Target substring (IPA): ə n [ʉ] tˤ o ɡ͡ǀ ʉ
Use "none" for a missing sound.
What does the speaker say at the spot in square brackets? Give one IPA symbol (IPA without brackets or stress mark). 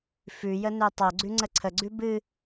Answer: ø